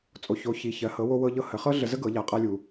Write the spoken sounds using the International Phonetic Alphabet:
t͡sʼ o˩ ç o˩˧ ç i˩˧ ç ɜ˩˧ h ɤ˩˧ w o˧ w ɤ˧ ʎ ɤ˧ h ə˩˧ χ ɤ˥ ɮ ə˧ z ə˥ ɡ ɤ˩˧ ʎ a˩ qʼ a˧ lʲ u˩

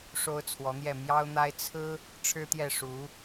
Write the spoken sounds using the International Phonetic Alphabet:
ʂ o˥ ʊ̯ t͡sʰ w ɔ˧˥ n̪ j ɛ˥˩ m j ɑ˥ ʊ̯ n̪ a˥ ɪ̯ t͡sʰ ɹ̩˥ | ʈ͡ʂʰ ɻ̩˥ t̪ j ɛ˥˩ ʂ u˧˥

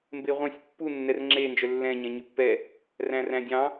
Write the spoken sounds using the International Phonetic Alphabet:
m b e ʁʷ ɑ̃ sʲ pː u nː ɛ r ŋ͡ǁ e n d͡ʒ œ lː ɛ̃ ɲ ɛ̃ ɲ y pː ɛ | r æ̃ r æ̃ dʲ ɑ̃

